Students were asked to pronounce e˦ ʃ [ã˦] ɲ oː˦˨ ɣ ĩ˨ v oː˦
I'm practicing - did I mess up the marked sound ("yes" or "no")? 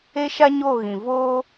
yes